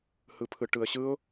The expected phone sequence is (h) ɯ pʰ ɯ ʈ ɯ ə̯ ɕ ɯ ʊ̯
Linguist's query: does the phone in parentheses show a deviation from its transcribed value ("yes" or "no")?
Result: no